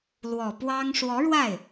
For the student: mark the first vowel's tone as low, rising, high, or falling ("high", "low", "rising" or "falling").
low